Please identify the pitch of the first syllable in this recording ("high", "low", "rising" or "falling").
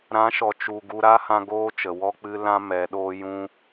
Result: rising